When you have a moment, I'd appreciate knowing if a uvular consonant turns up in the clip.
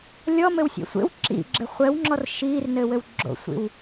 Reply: yes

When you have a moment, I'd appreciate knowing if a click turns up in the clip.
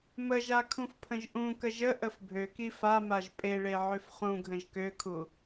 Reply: no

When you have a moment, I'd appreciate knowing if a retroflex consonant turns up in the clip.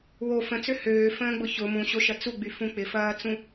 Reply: no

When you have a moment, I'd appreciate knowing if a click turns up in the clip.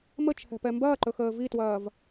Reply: yes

